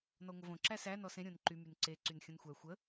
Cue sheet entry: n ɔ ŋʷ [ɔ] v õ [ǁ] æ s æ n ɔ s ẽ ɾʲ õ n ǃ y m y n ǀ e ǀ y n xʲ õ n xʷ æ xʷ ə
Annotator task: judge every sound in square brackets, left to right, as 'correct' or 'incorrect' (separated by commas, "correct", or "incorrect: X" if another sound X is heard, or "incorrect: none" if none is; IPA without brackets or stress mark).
incorrect: ə, correct